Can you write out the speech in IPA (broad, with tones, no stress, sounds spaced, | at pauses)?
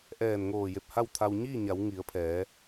ʔ ɛː˧˩ n ŋ oː˧˩ j e˧˩ p̚ h a˥˨ w t̪ʰ a˧ w ɲ iː˥˨ ɲ a˩˧ w ŋ i˩˧ ə̯ pʰ ɛː˩˧